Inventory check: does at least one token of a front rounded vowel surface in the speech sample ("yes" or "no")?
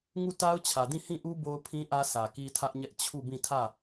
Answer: no